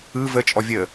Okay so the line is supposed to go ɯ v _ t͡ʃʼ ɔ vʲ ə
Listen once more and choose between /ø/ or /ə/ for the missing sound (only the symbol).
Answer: ə